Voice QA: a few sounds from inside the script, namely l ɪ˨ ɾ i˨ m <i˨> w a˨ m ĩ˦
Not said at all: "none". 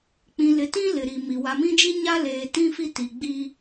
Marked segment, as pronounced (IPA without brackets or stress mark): i˨